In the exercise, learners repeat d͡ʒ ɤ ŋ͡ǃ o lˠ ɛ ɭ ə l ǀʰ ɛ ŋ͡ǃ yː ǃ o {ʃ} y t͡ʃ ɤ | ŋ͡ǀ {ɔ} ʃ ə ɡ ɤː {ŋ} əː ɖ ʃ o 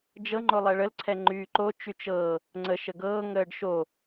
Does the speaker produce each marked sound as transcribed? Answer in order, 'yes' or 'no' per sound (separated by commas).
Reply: no, no, yes